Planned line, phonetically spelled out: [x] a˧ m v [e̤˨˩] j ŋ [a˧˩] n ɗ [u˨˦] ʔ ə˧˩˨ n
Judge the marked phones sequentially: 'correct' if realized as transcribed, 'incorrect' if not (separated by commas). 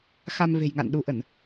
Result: correct, correct, incorrect, correct